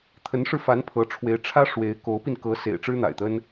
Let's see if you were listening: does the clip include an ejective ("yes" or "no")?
no